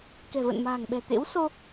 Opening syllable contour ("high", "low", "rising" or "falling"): low